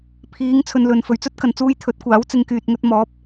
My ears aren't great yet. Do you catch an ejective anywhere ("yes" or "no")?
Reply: no